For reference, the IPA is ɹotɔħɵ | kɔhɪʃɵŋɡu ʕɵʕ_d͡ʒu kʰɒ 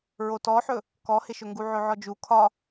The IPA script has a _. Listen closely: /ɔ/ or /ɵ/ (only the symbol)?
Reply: ɔ